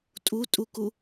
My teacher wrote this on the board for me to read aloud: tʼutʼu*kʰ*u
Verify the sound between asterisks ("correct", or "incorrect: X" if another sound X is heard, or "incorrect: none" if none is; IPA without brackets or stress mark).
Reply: incorrect: k